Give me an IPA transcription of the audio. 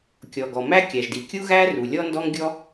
kʲ ɔ˩ ɡ ɔ˩ m æ˥ kʲ æ˩ ʒ d i˩ kʲ u˥ ɣ æ˥ r u˩ lʲ ɔ˥ n d ɔ˥ ŋ ɡʲ ɔ˥

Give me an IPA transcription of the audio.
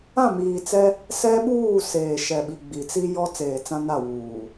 ã˦˨ m iː˨ t͡s ɛ˦ | s ɛ˦ ɓ uː˦˨ s eː˨ ʃ ɛ˨ ɓ i˨ ɡ͡b i˨ t͡s i˦ j ɔ˦ t͡s eː˨ t͡s ã˦ n a˦˨ w uː˨

